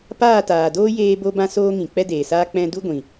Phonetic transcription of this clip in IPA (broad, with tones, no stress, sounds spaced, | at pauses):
p aː˦˨ t aː˨ d oː˦ j eː˧ b o˧ b ã˧ s oː˧ ŋ ĩ˨ k͡p ɛ˦ d eː˨ s aː˦ k͡p ɛ̃˧ d u˦ ɡʷ ĩ˨